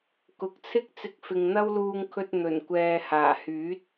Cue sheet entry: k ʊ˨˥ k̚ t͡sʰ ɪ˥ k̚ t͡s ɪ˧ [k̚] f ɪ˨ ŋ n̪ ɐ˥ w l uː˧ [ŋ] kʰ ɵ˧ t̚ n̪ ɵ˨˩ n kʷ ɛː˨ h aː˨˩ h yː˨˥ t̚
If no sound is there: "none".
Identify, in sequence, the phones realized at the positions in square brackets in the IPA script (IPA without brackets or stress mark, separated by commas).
k̚, ŋ